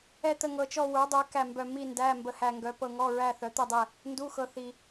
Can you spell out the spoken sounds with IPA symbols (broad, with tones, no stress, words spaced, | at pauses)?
ɛ˥˧t̪ə˥˧ ŋɤ˧t͡ʃɔ˥˧ wə˞˨˥dˤə˞˨˥ kæ˥˧mbœ˥˧ mi˥˧ndæ˧˥˧ mbə˧hæ˧ŋɡœ˨˥ pɤ˧ŋɔ˧˥˧ ɹæ˥˧θœ˨˥t̪ə˥˧dˤɛ˥˧ | ndu˧˥˧xɤ˧ θi˧